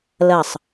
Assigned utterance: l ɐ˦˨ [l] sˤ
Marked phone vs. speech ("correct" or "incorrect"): incorrect